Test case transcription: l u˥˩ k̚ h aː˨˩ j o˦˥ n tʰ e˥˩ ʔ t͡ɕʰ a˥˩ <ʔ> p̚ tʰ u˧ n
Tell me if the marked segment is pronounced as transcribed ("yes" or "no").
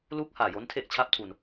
no